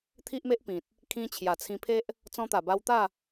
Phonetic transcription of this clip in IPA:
t̪ʰ i˦ ʔ m e˦ ʔ p ĩ˨ t̚ | kʰ ĩ˧ t͡ɕʰ j a˨˩ t͡sʰ ĩ˧ pʰ e˦ ʔ | t͡s ɔ̃˧ t̪ a˨˩ b a˧ w t̪ a˥˧

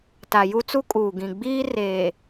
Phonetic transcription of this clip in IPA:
t a˨ j u˦ t͡s u˦ kʼ uː˨ ɡ ĩ˨ ɡ͡b iː˦ r eː˨

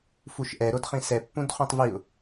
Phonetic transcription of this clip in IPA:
f u ʃ ʔ ɛ ɾ o d χ ĩ s ɛ pː ũ d χ ũ tˤ v i ʊ̯

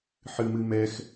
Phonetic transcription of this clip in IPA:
ħ ɨ m ɨ m ɛ x

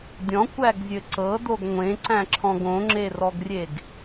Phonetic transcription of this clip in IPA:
dʲ ɔ̃ kʷ æ ɡ zʲ ɘ ǀ ɤ d̪ o ɡ ŋʷ ẽ ǀ æ̃ ǁʰ ɔ̃ ɡ õ ŋ͡ǁ e r ɔ ɡ rʲ e ɡ

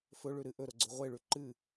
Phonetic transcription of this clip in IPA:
f ɵ ɭ ʉ ɾ ɨ ʔ ɵ ɾ o ɡ͡ǀ o ʁʷ e ɭ ʉ ǃ ɨ

